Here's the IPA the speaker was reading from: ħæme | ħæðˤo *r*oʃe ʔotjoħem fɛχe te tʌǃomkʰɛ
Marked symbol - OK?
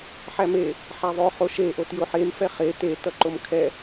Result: no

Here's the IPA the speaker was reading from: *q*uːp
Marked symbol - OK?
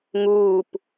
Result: no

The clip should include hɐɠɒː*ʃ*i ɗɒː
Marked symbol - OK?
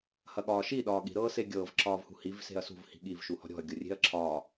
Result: yes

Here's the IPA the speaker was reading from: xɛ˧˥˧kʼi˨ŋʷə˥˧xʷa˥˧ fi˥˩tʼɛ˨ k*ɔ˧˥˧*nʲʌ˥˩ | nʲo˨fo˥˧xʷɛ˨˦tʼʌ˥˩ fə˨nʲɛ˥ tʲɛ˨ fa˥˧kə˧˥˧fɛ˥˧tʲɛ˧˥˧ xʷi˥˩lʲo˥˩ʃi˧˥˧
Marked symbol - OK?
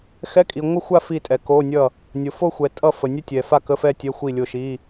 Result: no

